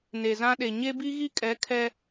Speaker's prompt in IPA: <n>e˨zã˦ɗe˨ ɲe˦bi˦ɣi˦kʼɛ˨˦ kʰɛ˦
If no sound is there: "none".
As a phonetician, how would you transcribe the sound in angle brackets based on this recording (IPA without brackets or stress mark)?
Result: n